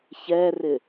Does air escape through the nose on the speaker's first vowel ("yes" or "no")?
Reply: no